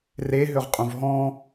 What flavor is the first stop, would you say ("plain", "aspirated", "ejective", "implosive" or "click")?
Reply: ejective